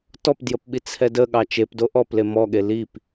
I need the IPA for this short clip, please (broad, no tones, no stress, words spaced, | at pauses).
tɔpdjəpɓi t͡sʰɛdəɠɑ t͡ʃepdo ʔɔple mɔɠe lip